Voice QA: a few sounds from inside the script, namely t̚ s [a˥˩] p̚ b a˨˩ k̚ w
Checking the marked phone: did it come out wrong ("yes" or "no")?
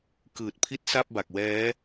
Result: no